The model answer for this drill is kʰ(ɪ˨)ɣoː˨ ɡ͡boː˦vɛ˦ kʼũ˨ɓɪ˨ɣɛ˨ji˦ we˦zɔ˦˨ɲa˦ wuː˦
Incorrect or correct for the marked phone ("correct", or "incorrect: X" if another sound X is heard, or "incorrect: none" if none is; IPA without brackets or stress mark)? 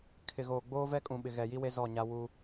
correct